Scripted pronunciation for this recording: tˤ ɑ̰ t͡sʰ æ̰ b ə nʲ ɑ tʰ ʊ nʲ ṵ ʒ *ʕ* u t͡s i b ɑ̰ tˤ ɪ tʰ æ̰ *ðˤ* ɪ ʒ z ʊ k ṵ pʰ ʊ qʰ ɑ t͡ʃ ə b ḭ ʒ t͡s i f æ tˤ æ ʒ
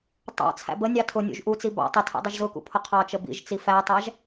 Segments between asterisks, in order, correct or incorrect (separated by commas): incorrect, incorrect